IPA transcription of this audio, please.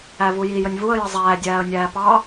ævuji jənʲvuə̯ jəzˤæː dʲæːə̯nʲæːpɑ

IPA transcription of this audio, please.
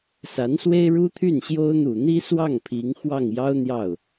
sa˧˥n swe˥ɪ̯ɻu˥t̪ʰy˥˩nɕjo˥ʊ̯ n̪u˨˩n̪i˥swɑ˥˩ŋ pʰi˧˥ŋ xwɑ˥˩ŋjɑ˥ʊ̯ n̪jɑ˥˩ʊ̯

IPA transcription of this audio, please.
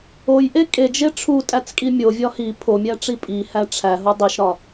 ojʔe kʼed͡ʒe ʈ͡ʂʰutʼæt͡skʼi mʲovʲɒ hi pʰomʲæʈ͡ʂi pʼihæ ʈ͡ʂʰæɦo dˤiʃɾɒ

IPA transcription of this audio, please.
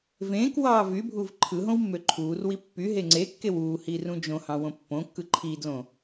vẽːkwɑː vybʱuv ǃʰɯɦõwmːø ǃʰuːrwi pːyɦe ŋ͡ǀekːew uːhirũ d͡ʒõhɑ̃wõ pːõkːɯ ǃʰidlõ

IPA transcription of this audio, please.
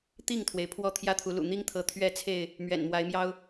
t̪i˥˨ŋt̪ʰwe˩ɪ̯ pʰwɔ˥˨t̪ʰjä˦t̪ʰu˨˦ lṵ˨˩n̪i˦ŋt̪ʰɤ˨˦ t̪ʰɥɛ˥˨t͡sʰe˥˨ɪ̯ | mɥɛ̰˨˩nmwa˨˦ɪ̯mjɑ˦ʊ̯

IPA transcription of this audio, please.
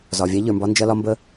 zɒ˨vʲa˦ʎə˞˨mbɒ˦ nd͡ʒɐ˦lɒ˦mbə˦

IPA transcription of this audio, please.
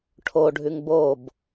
ʈʰoɖʱʉŋ bob

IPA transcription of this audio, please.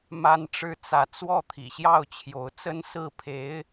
ma˥nʈ͡ʂɻ̩˥˧ t͡sä˥˧ t͡swɔ˥˩t̪ʰḭ˨˩ɕjɑ˥˩ʊ̯ t͡ɕʰjo˧˥ʊ̯t͡sə˥nsɹ̩˥˩pʰe˧˥ɪ̯

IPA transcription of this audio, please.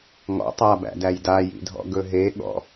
ŋɔ̰ tˤabæ̰dæj dajḭdʱɔ̰ ɡɵɦeɠɔ̰

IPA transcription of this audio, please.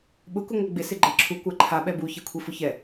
ɓʊ kuŋʷaɡ͡bɪ sɪɡ͡ǃɛǁʰu kʷaǃʰa ɓɛbu çɛkʷʰifʊçɛ

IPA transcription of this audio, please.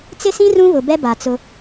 t͡sɪ˦sĩ˦ rũ˦βʊ˨bɛ˦ ba˨t͡sʊ˦

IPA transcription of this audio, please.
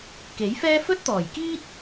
ke˨˥jfɛː˥ fɵ˥t̚t̪ɔː˨˩jkiː˥t̚

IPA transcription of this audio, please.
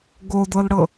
ɡodɤlɽɤ

